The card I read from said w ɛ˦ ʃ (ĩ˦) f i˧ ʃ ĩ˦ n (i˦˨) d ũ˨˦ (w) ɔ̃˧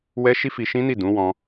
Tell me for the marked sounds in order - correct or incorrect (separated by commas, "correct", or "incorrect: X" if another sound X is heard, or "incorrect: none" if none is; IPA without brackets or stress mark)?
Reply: incorrect: i˦, correct, correct